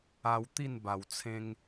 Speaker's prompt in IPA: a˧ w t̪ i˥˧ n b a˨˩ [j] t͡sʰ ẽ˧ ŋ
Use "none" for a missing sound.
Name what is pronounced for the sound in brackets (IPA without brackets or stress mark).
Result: w